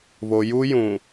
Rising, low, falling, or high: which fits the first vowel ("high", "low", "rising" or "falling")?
low